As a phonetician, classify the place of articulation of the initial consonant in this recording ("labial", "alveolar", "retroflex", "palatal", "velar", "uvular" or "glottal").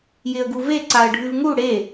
palatal